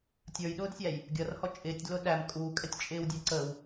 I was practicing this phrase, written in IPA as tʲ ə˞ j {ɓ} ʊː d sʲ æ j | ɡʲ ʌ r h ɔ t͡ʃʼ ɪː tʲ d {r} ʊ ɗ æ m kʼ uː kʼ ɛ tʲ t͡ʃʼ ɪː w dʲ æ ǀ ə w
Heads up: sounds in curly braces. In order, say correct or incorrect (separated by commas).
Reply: incorrect, incorrect